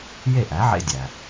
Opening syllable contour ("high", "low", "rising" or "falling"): falling